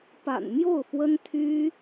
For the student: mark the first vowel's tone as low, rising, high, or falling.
low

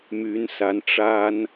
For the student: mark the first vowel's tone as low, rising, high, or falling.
rising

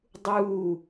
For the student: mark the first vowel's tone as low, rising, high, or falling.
falling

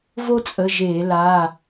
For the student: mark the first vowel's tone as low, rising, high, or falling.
high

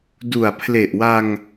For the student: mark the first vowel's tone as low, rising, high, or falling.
low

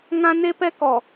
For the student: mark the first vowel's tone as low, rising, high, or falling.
high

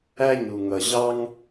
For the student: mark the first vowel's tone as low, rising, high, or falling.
high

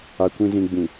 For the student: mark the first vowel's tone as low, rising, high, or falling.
low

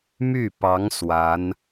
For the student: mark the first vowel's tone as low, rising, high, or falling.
falling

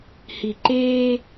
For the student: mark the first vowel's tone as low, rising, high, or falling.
low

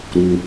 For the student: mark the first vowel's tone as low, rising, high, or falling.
low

